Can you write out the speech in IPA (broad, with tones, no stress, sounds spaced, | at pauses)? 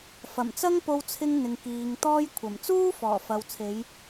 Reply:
f ɐ˨˩ m t͡s ɐ˥ ŋ p o˧ w t͡sʰ ɪ˧ ŋ n̪ ɪ˨ ŋ k iː˨ ŋ t̪ ɔː˥ j kʷʰ ɐ˨˩ m t͡s uː˥ f ɔː˨˩ f ɐ˨ w t͡sʰ e˨˧ j